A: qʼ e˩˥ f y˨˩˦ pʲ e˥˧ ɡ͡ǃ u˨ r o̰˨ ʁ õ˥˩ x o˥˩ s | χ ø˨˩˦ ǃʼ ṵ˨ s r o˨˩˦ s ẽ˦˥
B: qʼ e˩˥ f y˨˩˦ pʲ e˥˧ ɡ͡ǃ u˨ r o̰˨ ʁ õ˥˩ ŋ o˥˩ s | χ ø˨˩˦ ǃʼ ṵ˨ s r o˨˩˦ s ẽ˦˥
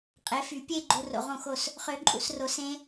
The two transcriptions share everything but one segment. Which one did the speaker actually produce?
A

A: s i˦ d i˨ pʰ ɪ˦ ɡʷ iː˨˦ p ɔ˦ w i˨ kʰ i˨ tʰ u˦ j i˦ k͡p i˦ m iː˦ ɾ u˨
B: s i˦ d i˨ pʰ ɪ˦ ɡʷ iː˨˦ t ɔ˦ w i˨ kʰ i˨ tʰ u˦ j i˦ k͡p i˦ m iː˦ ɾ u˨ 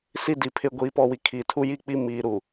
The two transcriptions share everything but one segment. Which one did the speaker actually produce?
A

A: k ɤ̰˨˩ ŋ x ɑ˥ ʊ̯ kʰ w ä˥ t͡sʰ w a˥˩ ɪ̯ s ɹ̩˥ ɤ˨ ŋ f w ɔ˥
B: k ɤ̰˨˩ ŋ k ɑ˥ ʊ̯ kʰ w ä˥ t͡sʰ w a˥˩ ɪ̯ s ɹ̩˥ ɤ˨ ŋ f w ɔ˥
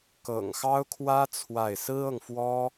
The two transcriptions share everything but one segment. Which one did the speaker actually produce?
A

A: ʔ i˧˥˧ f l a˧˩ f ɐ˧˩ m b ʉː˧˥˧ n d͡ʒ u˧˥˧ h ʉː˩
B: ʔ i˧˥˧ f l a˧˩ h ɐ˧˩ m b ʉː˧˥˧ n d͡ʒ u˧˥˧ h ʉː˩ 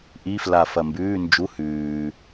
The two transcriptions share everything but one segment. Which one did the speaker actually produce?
A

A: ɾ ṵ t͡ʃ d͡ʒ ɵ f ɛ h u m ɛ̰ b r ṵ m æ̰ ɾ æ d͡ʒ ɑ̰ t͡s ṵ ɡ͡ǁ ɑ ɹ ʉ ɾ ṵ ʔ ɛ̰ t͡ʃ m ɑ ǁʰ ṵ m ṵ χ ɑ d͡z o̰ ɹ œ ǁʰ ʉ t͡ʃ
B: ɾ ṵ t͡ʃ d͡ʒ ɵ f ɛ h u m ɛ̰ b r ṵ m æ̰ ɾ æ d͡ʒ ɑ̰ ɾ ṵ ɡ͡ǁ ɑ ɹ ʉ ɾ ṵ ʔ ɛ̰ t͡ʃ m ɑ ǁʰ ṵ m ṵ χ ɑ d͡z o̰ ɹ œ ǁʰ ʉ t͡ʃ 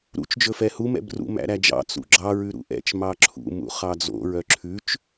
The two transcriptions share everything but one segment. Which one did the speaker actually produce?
A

